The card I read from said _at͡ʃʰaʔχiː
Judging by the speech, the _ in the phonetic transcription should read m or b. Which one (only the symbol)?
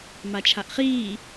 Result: m